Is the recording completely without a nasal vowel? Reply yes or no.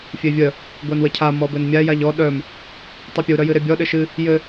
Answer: yes